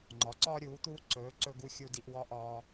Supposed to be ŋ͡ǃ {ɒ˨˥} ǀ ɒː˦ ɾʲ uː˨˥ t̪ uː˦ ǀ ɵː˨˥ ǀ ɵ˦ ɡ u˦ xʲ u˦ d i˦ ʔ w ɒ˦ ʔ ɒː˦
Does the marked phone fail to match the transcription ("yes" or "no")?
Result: no